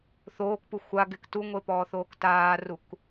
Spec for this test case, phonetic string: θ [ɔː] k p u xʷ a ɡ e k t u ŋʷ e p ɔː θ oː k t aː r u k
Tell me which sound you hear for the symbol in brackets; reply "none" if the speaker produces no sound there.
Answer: oː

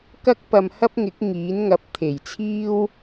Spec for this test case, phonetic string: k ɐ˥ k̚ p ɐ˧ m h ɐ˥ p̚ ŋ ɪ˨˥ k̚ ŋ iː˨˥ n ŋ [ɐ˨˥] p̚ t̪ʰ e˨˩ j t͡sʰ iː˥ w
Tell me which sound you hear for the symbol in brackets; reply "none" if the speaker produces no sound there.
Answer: ɐ˨˥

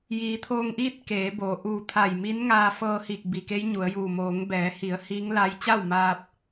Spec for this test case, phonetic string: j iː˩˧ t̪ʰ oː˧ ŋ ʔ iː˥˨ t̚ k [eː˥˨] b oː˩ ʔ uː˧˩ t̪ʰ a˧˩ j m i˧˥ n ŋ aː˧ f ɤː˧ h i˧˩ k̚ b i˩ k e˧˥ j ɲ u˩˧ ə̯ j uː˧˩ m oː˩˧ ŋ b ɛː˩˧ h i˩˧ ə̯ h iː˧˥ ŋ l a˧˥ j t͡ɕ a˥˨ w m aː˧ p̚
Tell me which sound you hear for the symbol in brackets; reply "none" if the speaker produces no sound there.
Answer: eː˩˧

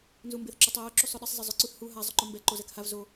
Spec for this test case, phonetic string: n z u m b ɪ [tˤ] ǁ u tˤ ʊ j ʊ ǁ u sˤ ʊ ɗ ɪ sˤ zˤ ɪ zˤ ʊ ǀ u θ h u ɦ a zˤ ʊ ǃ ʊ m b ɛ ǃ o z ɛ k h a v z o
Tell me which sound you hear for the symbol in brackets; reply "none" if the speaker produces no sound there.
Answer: θ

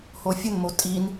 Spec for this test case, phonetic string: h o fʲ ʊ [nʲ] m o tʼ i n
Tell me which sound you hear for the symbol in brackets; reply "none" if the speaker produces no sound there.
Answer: n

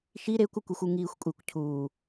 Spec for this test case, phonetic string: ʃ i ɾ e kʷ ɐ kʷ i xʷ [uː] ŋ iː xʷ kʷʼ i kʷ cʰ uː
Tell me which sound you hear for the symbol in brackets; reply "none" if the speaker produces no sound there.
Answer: u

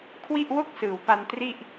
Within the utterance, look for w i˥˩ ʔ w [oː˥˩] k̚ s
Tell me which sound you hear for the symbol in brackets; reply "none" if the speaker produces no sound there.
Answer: o˥˩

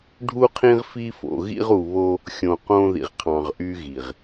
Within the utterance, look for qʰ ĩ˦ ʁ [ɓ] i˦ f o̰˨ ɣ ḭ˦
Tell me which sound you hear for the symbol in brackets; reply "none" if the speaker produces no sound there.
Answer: f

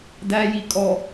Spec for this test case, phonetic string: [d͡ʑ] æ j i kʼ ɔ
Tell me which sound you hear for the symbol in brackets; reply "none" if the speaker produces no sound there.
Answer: d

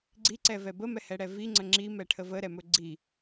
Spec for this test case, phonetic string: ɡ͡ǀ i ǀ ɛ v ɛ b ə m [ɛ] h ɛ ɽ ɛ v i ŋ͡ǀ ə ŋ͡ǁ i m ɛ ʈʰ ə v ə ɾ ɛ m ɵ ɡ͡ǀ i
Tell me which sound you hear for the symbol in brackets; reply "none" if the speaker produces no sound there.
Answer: ɛ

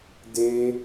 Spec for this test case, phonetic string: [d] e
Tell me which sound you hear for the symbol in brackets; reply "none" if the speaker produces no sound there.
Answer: d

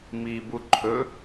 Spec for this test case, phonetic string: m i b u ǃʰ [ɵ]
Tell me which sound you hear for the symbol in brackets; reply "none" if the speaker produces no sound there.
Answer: ɵ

